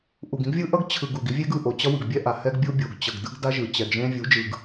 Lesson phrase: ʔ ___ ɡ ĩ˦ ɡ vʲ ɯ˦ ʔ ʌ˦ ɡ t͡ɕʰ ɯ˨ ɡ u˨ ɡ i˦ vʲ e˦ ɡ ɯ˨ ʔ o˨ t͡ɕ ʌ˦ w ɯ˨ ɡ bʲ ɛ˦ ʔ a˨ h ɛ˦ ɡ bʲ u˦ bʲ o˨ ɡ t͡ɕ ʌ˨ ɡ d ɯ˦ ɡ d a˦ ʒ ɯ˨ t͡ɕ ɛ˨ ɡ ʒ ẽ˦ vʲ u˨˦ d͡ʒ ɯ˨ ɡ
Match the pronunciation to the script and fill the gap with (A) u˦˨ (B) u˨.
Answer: B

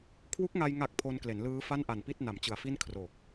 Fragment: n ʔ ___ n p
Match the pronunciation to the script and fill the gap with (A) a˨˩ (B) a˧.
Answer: A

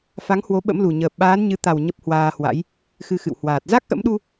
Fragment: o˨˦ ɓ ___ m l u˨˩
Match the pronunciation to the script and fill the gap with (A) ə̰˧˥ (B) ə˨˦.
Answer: A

